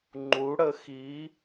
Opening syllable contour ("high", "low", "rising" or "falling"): rising